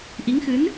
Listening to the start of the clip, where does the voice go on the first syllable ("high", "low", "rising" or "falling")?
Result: rising